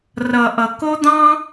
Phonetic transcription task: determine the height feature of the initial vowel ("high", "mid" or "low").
mid